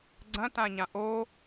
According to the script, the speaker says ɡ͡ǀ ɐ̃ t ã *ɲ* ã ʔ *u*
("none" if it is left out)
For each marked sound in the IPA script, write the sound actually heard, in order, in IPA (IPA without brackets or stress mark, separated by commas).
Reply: ɲ, o